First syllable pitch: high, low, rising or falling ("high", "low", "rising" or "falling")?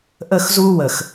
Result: falling